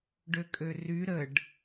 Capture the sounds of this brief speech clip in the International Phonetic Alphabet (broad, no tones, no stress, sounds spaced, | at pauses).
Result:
ɖ ø kʼ ø r y ɾ ə ɖ